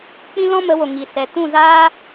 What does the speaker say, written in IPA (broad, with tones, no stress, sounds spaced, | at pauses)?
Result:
k͡p ĩ˦ l ɔ̃˦ m ə˨˦ w o˨ ŋ i˨ s ɛ˨ t ũ˦˨ z aː˦